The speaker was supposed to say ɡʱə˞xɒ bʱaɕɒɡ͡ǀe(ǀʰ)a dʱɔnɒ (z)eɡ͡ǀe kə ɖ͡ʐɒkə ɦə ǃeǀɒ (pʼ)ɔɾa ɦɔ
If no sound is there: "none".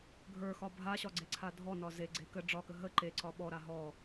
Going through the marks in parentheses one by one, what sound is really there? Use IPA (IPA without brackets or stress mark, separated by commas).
ǀʰ, z, ɓ